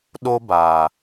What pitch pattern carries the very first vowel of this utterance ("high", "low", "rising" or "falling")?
high